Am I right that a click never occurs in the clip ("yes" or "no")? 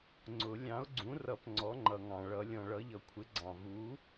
no